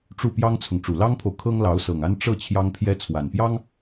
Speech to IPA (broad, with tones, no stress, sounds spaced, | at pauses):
ʈ͡ʂ u˥˩ p j ɑ˥ ŋ t͡sʰ ʊ˨ ŋ ʈ͡ʂ u˨˩ l ɑ˥ ŋ pʰ o˨ ʊ̯ kʰ ɤ˥ ŋ l ɑ˧˥ ʊ̯ s ɤ˨˩ ŋ a˥ n ʈ͡ʂ ɤ˥˩ t͡ɕʰ j ɑ˥ ŋ pʰ j ɛ˥ t͡sʰ w a˨˩ n p j ɑ˥ ŋ